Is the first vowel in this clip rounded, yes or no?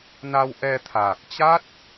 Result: no